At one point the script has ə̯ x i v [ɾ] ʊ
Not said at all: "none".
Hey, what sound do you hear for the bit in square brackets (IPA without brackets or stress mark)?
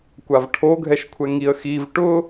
ʈ